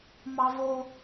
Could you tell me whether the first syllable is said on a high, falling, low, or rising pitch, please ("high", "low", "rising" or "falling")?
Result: high